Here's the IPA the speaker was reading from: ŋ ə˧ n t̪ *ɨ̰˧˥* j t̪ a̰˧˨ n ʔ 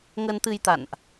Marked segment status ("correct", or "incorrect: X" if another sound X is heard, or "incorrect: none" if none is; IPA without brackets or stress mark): incorrect: ɨ˧